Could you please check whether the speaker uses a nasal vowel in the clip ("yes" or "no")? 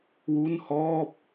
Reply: no